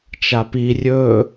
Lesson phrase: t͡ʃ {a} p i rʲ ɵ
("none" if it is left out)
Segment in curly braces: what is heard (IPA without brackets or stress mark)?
a